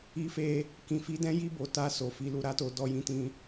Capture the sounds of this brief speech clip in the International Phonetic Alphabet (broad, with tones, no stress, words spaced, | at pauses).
i˧fe˧ | kĩ˨fi˨˦dɛ̃˦ ji˧bo˨ ta˧ so˨fi˧lu˧ ɾa˦to˦ dɔ˦jĩ˦tĩ˦